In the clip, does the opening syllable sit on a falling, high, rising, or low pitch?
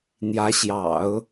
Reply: rising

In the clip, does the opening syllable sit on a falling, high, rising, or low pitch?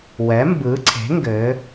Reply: rising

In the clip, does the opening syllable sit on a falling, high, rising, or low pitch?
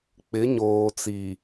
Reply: rising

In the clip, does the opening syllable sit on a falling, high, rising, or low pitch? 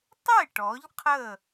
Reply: falling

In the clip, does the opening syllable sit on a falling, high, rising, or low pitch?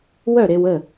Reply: falling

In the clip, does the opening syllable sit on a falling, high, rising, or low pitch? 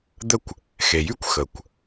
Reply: falling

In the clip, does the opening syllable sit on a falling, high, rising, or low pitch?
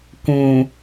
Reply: low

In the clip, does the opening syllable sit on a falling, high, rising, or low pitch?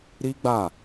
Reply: high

